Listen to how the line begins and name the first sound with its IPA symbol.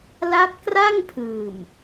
l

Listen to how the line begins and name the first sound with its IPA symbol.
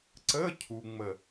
ǀ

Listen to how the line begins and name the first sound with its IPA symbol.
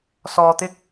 s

